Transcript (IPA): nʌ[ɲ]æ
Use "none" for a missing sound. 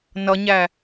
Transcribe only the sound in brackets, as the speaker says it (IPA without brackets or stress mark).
ɲ